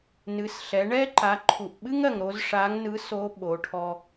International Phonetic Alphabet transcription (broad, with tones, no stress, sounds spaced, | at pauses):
n ɨ˩˧ s ɬ ɛ˩˧ ɳ ɛ˥ ǃ a˩˧ ǃʰ u˩ ʔ ɓ ɨ˥ ŋ ɜ˩ ŋ ɾ o˧ z ʂ a˧˥ ŋ n ɯ˧˥ s o˧˥ ɓ o˩˧ ʈʰ ɔ˧